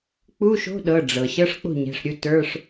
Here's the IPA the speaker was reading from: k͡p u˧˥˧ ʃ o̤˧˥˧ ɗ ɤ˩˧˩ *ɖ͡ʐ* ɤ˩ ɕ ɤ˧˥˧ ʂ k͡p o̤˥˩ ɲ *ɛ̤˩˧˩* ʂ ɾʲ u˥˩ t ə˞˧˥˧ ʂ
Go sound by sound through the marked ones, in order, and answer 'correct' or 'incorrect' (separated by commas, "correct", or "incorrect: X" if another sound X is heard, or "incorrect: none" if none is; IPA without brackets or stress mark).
correct, correct